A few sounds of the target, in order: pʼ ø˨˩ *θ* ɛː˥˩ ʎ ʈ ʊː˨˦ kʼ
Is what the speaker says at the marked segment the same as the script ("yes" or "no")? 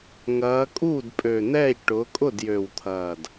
no